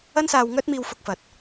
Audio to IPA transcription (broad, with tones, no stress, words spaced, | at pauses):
ɐ˥nsaː˧wŋœː˥t̚miː˧w fʊ˧k̚fɐ˨t̚